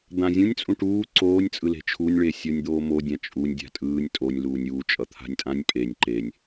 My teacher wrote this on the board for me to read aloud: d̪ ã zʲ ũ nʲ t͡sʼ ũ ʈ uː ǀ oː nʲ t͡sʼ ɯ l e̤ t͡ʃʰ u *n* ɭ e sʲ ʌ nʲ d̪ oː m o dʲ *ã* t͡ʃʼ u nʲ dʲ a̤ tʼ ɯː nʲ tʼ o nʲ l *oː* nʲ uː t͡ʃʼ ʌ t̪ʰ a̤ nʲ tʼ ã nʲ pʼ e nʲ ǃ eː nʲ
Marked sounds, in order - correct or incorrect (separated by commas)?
incorrect, correct, incorrect